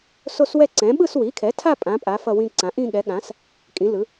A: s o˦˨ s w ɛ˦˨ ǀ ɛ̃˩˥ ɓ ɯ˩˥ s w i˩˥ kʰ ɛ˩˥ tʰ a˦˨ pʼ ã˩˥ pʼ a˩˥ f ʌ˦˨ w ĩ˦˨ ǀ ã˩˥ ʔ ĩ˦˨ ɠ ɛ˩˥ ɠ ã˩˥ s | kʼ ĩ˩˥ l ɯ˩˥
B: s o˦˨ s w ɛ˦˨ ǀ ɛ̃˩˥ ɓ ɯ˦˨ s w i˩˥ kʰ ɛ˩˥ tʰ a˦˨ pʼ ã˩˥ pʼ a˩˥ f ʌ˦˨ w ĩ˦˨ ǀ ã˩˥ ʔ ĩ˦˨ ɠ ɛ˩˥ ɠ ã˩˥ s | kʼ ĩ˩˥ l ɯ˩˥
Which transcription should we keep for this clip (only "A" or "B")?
B